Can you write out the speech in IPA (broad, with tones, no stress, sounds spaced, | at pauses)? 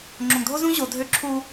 ŋ͡ǁ õ˨ ŋ dʱ o˦ z ũ˦ ʑ o˨ dʱ ø˦ ǁʰ u˦